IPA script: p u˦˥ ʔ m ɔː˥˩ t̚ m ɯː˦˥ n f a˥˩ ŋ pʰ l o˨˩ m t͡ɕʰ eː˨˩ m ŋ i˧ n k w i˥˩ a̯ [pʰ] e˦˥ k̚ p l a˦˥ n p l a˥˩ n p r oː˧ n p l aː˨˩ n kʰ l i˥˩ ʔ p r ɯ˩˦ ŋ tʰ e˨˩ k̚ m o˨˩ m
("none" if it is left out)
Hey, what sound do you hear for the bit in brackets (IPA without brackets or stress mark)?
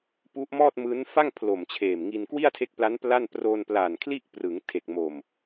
tʰ